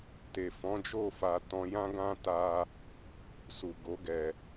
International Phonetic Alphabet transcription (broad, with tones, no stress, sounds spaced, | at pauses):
t e˨ f ɔ̃˨˦ d͡ʒ o˦˨ f a˧ t ɔ̃˧ j ã˦ ɡ ã˦ t a˦ | s u˨ ɡ o˨˦ ɡ ɛ˧